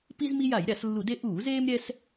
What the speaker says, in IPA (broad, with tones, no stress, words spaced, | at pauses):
pi˦zmi˦ ja˧˩˧jɾʲa˧˩˧slːu˧˩˧de˦ ʔuː˧˩˧zeː˦mɾʲɛ˦s